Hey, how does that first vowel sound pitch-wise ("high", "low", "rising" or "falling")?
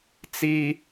high